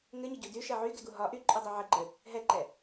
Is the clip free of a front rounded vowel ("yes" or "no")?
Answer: no